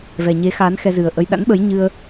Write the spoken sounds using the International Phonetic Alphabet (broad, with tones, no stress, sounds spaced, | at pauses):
v ɛ˨˩ ɲ e˨˦ x aː˨˦ n x ɛ˧ z ɨ˨˩ ə̯ ʔ ə˧ j ɗ a̰˧˥ n ɓ ə˨˦ j ɲ ɨ˧ ə̯